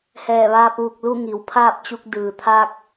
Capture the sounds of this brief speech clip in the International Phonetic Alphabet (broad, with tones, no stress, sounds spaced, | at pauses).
h ɛː˧˩ ʋ aː˧ p̚ ʋ u˧˩ k̚ l u˥˨ ŋ i˩˧ w pʰ aː˥˨ p̚ t͡ɕ u˧ k̚ d ɯː˩ t̪ʰ a˧ k̚